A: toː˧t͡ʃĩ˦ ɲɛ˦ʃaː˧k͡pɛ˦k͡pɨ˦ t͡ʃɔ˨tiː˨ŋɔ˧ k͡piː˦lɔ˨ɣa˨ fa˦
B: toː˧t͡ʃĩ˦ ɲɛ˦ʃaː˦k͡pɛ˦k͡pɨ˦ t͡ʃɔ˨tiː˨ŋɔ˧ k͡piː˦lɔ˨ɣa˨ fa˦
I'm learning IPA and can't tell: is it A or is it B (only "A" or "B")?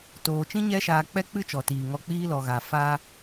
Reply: A